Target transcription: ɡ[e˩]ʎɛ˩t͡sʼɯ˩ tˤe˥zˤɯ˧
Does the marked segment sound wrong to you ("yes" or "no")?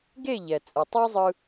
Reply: yes